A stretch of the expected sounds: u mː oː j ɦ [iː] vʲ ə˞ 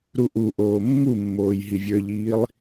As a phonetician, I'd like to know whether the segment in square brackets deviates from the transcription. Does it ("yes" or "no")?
yes